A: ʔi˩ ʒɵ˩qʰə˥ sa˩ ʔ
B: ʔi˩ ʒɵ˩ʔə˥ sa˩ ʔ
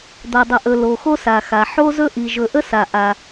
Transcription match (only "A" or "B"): B